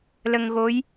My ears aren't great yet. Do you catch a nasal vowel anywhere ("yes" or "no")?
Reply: no